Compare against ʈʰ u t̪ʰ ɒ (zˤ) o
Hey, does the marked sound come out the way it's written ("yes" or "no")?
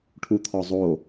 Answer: yes